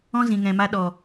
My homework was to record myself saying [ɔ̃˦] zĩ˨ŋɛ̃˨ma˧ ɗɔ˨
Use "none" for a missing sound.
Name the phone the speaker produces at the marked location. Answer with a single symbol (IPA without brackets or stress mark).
ɔ̃˦